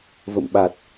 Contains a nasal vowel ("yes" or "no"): no